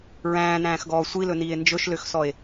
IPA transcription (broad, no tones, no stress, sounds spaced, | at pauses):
ɹ æ̃ː n æ̃ː x ɡ ɔː sʷ i l ɵ n iː e̯ n d͡ʒ ɵ ʃ l ø x s ɔ e̯